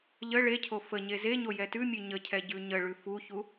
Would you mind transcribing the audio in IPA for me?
ʎ ə ɭ e cʰ o f ə ɲ e z e ɲ o j ɛ t ʉ mʲ ʉ ɲ ə cʰ ɛ ɟ ʉ ɲ ə ɭ ʉ f u ç u

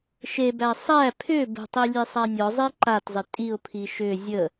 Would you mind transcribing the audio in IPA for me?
ʃ e b æ sˤ æ pʰ ʏ b ə̤ tˤ i lʲ e sˤ a nʲ ɔ zˤ i ǃ a t zˤ ɪ tʼ i ʊ̯ pʰ i ʃ ʏ zʲ ə

